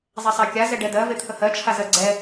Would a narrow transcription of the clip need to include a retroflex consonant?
yes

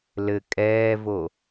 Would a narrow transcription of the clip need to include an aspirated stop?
no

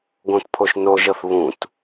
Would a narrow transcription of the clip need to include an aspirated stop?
yes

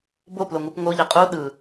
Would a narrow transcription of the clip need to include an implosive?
yes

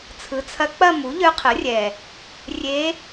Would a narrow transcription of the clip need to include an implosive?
no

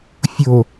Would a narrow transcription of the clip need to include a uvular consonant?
no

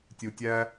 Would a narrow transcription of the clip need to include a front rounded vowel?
no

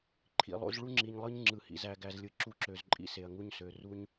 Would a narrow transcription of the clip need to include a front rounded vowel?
yes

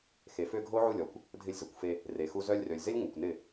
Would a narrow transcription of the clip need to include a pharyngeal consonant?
yes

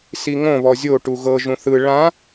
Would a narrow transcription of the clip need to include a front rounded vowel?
no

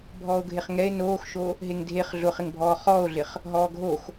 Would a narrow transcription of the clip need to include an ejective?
no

